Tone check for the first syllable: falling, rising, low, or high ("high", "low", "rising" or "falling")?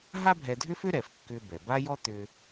high